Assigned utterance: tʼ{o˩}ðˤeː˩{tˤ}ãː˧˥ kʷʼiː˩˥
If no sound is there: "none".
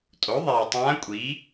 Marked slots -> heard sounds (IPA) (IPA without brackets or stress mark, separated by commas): o˩˥, tˤ